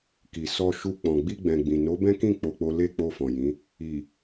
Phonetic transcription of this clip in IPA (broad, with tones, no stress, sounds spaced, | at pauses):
k i˨ s ɔ˧ ʃ u˧ k͡p ɔ̃˨ ɡ͡b i˧ ɡ͡b ɛ̃˨ ɡ͡b ĩ˨ n o˨˦ b ɛ̃˦ k ĩ˦˨ k͡p o˧ k͡p o˦ l e˧ k͡p o˧ f ɔ̃˨ j ĩ˨˦ | i˨